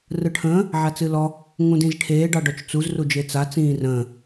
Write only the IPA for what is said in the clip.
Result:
r ɯ ʈʰ ə̃ː | ʕ a t͡s ɨ l ɔ | ŋ ũ d ĩ z ʈʰ eː ɖ ɑ ɖ ɔ t͡ʃ t͡s u z r u d͡ʒ e t͡s a t͡s ĩː r ə̃ː

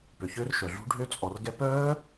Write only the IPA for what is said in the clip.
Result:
p ø˨ ç ø˦˥ r ʃ œ˨ ɮ ṳ˦˥ ɖʱ ø˦˥ t͡sʼ ɔ˨ r ɡ ɛ˦˥ p œː˦˥

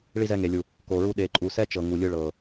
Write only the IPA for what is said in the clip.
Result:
ɭ i˧ z ɛ˧ ŋ e˨ lʲ u˨ | k o˨ ɹ u˧ ɗ e˨ ǃʼ u˨ s ɛ˦ t͡ʃ ɤ˨ ŋ u˨ lʲ ɯ˧ ɭ ɤ˨

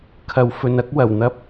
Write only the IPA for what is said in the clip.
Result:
kʰ ɐ˨ w f ɵ˨ n ɐ˨˥ k̚ w ɐ˨˩ w n̪ ɐ˥ p̚

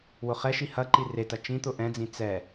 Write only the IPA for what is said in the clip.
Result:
w ʊ χ ɛ ʃ i h ɐ ǃ i r e t ɐ t͡ʃ ĩ t̪ ʊ ʔ ɛ̃ d͡z ĩ t͡s ɛ

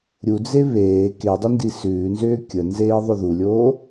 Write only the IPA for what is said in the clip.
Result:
ɾʲ u d͡z e β eː k e dˤ ʏ n d i s ʉː n z ʏː kʲ ə n z eː ðˤ ʏ ð u lʲ oː

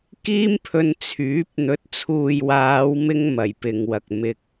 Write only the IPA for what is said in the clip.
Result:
k iː˥ m pʰ ɵ˧ n t͡sʰ yː˨˥ p̚ n̪ ɵ˨˥ t̚ t͡sʰ uː˨ j w aː˨˧ w m ɪ˧ ŋ m ɐ˨˩ j p ɪ˨ ŋ w ɐ˨ k̚ m ɪ˧ k̚

